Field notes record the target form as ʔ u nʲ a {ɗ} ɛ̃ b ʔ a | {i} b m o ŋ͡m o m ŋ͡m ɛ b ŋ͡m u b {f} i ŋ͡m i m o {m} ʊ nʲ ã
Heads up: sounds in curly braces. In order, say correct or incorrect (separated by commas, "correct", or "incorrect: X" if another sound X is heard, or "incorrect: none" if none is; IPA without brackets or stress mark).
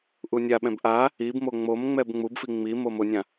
incorrect: ɓ, correct, correct, correct